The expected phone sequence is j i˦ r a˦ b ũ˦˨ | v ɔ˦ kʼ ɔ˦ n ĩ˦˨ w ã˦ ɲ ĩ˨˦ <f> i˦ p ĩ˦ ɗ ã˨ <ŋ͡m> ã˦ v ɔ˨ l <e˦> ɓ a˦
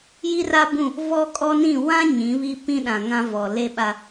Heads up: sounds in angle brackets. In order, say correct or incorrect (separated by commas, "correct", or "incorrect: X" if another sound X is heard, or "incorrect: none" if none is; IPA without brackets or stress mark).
incorrect: β, incorrect: ŋ, correct